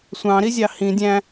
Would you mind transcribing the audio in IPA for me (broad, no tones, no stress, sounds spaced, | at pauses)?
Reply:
sʷ ɑ̃ ɾ i zʲ ɑ h ĩ dʲ æ̃